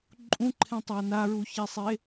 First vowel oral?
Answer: no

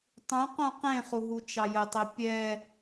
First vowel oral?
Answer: no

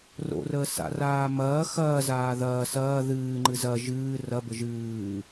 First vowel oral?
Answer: yes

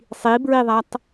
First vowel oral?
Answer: yes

